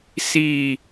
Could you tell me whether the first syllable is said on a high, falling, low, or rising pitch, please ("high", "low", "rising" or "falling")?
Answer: falling